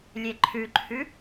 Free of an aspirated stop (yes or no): no